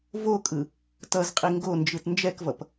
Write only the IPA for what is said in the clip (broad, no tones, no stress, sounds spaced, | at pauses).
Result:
v o kʼ ɯ | t ʌ z qʼ i ŋ ɡ o n d͡ʒ ɯ t n d͡ʒ ɛ k v ʌ p